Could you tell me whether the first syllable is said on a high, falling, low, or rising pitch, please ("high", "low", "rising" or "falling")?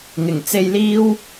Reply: low